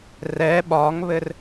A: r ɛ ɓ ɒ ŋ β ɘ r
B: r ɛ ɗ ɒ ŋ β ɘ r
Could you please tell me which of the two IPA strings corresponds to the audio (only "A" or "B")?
A